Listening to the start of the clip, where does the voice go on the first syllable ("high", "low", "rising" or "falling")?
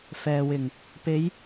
low